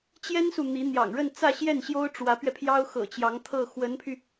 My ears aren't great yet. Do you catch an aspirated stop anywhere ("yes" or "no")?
yes